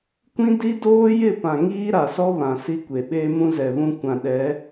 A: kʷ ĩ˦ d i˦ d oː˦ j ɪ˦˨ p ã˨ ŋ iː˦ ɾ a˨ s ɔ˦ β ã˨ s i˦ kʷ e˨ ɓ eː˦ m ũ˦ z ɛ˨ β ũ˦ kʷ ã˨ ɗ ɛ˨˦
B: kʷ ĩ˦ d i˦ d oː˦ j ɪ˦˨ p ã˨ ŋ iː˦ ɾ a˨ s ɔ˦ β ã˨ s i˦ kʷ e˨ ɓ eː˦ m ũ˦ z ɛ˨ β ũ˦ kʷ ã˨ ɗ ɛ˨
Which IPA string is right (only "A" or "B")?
A